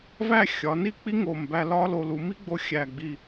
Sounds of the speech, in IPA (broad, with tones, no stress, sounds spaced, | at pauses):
v æ˥˧ xʲ ɒ˩˧ n i˥˧ k͡p i˥ ŋ o˧˩ m b æ˧ l ɒ˥ l o˧ l u˩˧ m i˥ ɡ͡b o˧ xʲ æ˧˩ ɡ͡b i˧˩